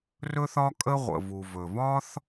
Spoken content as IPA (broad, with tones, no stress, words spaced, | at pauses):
rɵ˥θɒ˥kʼə˥ ʁʷə̰˩vu˩ vɵ˩vɒ˥θ